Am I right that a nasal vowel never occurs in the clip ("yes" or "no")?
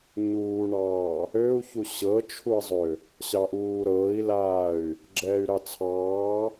yes